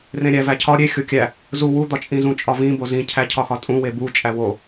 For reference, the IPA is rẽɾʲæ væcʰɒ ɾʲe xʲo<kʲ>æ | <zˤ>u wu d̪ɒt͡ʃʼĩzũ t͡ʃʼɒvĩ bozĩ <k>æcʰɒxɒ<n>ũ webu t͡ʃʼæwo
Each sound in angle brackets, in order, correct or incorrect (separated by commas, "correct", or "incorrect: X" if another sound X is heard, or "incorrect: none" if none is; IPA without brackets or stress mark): correct, incorrect: z, incorrect: cʰ, incorrect: tʼ